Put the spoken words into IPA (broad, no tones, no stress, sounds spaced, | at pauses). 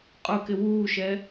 qʼ ʊ k ɪ w uː ʃ ɛ